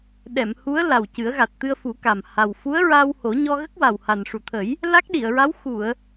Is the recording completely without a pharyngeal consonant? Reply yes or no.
yes